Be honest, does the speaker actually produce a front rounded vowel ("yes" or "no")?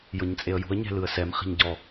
no